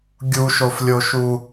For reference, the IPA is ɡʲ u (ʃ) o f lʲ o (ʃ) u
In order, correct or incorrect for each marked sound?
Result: correct, correct

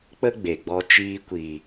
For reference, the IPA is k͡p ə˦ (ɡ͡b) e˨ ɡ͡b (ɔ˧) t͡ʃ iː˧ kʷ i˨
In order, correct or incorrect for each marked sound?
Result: correct, correct

